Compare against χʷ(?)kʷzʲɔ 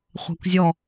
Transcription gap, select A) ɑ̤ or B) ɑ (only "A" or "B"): A